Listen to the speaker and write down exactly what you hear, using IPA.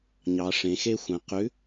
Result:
ɲ ɑ˩˧ ʂ ẽ˩˧ x e˥ xʷ ɛ̃˩˧ q ʉ˨˥

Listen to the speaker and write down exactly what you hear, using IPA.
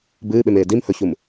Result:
b ɨː ɓ e m eː d i m h ɵ ç u m

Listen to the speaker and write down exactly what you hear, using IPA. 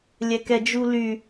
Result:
lʲ ɛ k ɛ d͡ʒ u l y

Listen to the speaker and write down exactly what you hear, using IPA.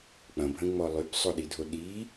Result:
k͡p ɐ̃ bʱ ə̃ ŋ͡m ɔ lˠ y b sˤ o ɗ i dʱ o ɗ i

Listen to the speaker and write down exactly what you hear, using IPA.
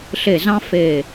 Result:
ɬ e˧˩ z ɑ̃˥ f e˧˩

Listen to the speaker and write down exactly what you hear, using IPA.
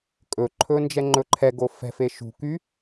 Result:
kʼ ɵ ǃʰ ɵ n d͡ʒ ɛ ŋ͡ǃ ɵ ǃʰ ɛ ɡ o f ɛ̤ f e ʃ ṳ k y

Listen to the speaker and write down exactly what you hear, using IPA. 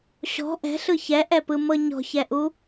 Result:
ɕ ɔ̤ ʔ ɛ̤ ɬ ɯ ç ɛ ʔ ɛ p ɯ m ɤ ɲ ɔ̤ ç ɛ ʔ u

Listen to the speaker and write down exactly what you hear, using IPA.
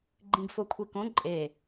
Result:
ɡ͡ǃ ĩ ɡ f o kʷʰ i k õ ǃʼ e

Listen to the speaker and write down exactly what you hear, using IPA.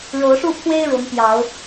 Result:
ɻ o˨˦ ʊ̯ ʂ u˥˨ pʰ w e˦ ɪ̯ ɻ ʊ˨˦ ŋ p j ɑ˨˦ ʊ̯

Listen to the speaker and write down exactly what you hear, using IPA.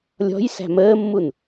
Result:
lʲ ɔ̤ j s æ̤ m əː mː u n

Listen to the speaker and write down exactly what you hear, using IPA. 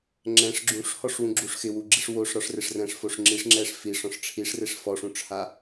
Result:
ŋ͡ǁ ɛ̃ ʂ ɡ͡ǁ ũ ʂ h ɔ ʂ w ũ ɡ͡ǁ u ʂ x ɪ w u ɡ͡ǁ i ʂ w o ʂ ɾ ɔ ʂ r ɪ ʂ r ɛ̃ ʂ f o ʂ ŋ͡ǁ i ʂ ŋ͡ǁ ɛ ʂ f i ʂ ɔ̃ ʂ ʈ͡ʂʰ i ʂ r e ʂ f ɔ ʂ ũ ʈ͡ʂʰ a

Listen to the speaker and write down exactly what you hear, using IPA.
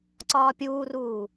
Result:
ǀ ɒː pʲ uː r uː

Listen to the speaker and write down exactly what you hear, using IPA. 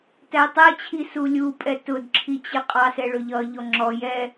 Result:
t æ tˤ ɛ t͡ɕʰ i s u lʲ u pʼ ɛ t ʊ d ǁʰ i t͡ɕ ɪ qʼ ɑ s ɛ ɭ ʊ ʎ ʌ ʎ ɔ ŋ͡ǁ ɔ j ɛ

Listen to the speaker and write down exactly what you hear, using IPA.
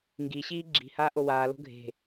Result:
ŋ ɡ i ɕ iː ɡ͡ǁ i̤ h aː ʔ o w aː l o̤ ɡʱ e̤

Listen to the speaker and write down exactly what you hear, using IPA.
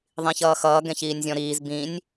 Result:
ðˤ ĩ ç ʌː x ʌː ɡ ɛ̃ ç iː nʲ zʲ ɔ̃ ɾ iː z b ĩ nʲ

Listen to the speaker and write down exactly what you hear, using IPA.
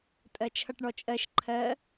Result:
tʼ ɜ t͡ʃʰ ʌ ʈ ɳ ɔ t͡ʃʼ ɜ ʃ ǃʰ ɜ

